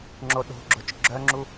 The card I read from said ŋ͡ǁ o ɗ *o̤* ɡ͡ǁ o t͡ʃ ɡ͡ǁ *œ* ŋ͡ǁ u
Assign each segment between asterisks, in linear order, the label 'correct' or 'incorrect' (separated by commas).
correct, correct